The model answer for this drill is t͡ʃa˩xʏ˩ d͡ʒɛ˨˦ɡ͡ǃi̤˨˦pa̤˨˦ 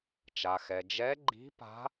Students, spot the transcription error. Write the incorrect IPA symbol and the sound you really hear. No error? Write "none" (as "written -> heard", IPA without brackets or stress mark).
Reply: ʏ˩ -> ɛ˩